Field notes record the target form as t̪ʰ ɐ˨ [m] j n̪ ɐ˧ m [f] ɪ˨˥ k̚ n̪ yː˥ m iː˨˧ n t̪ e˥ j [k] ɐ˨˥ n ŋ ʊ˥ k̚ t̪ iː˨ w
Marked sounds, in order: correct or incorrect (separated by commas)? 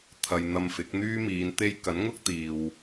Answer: incorrect, correct, correct